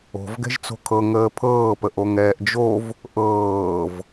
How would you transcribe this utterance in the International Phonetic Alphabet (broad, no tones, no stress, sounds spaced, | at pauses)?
o̤ v ɡ ɛ̤ ʒ t͡s o̤ kʰ ɤ ŋ əː pʰ ɤː p ə ʔ o ŋ ɛː ʔ d͡ʒ o v | ʔ ɤː v